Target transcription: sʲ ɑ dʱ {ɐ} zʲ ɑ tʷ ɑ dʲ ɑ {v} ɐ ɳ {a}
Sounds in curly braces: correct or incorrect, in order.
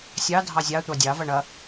incorrect, correct, incorrect

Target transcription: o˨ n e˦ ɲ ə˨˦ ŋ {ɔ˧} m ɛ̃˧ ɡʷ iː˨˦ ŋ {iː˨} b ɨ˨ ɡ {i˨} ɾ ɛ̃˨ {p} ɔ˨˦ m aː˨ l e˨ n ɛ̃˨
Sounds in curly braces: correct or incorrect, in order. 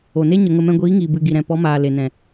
incorrect, correct, correct, correct

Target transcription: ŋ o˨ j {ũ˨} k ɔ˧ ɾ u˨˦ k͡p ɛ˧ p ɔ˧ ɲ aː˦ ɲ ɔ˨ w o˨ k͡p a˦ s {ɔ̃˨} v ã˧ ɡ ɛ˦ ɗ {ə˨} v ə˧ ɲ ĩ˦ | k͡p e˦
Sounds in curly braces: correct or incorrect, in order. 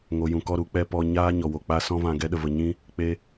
correct, incorrect, incorrect

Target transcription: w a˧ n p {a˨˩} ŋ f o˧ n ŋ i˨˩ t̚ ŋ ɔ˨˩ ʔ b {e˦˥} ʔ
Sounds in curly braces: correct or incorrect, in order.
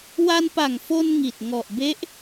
correct, correct

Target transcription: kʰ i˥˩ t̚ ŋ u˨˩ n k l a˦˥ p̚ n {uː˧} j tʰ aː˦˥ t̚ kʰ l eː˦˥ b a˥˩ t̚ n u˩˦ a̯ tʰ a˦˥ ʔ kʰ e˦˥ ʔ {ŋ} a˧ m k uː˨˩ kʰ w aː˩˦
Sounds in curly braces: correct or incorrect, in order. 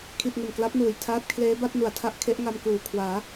incorrect, correct

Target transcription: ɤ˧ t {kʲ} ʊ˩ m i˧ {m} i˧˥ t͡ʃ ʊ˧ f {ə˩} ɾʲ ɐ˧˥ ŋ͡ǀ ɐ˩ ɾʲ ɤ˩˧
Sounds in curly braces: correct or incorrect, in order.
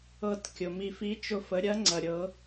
correct, incorrect, incorrect

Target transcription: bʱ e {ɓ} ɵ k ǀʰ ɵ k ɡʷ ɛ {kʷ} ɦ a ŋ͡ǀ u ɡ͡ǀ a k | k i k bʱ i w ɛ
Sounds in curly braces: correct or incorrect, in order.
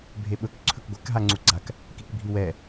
correct, incorrect

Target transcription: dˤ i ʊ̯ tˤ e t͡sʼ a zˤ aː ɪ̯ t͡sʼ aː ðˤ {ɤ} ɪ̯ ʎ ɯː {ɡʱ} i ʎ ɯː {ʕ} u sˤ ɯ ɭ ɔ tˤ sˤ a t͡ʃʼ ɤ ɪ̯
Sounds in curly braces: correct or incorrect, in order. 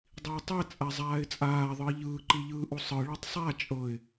incorrect, incorrect, incorrect

